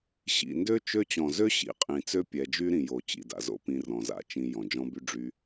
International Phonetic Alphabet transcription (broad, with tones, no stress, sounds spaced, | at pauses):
ɕ ḭ˨ n d ø˦ t͡ʃ ø˧ t͡ɕ ɔ̃˨ z ø˦ ɕ ḭ˨ qʼ ĩ˨ t͡s ø˦ pʲ ɛ˧ d͡ʒ y˦ ɾ ĩ˨ j o˨ t͡ɕ ḭ˨ d a̰˨ z o̰˦ p ĩ˧ r ɔ̃˨ z a̰˦ t͡ʃ ĩ˧ j ɔ̃˨ d͡ʒ ɔ̃˦ b y˦ ɖ͡ʐ y˧